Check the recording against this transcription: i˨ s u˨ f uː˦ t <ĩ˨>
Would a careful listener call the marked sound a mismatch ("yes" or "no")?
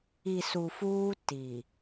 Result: yes